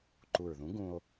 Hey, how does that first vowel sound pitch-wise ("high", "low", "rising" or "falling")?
low